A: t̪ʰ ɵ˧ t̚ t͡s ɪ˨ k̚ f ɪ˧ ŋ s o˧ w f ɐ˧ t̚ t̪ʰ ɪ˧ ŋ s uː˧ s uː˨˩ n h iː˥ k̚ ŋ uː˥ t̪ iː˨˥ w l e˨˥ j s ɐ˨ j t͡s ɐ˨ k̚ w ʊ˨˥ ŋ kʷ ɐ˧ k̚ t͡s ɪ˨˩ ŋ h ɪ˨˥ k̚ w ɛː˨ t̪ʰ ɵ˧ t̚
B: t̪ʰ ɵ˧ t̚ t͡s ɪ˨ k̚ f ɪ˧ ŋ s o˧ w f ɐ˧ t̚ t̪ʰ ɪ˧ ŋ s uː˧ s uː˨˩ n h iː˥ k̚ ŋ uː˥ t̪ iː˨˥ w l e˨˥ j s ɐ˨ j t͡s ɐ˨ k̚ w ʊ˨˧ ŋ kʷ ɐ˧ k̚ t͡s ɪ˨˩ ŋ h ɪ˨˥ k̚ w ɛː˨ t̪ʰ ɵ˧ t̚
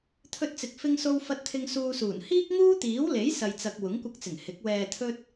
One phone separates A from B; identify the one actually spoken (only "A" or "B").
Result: A